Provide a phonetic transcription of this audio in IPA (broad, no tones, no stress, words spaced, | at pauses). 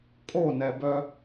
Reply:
kʼonɛbœ